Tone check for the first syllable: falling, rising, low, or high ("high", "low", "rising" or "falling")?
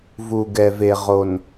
low